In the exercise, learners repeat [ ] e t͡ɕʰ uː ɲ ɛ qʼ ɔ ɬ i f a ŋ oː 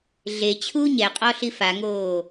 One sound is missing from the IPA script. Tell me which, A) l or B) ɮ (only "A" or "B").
B